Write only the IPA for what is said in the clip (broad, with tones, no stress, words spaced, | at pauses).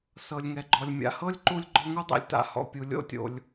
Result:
sɤ˩lʲŋɛ˩ɡ͡ǃɔ˩lʲ mʲa̰˩hɤ˥lʲǃu˦lʲ ɡ͡ǃɔ˦ŋu˥dˤḭ˨lʲ ta̰˨hɔ̰˨ pʲu˩lʲo̰˦tʲo̰˩lʲ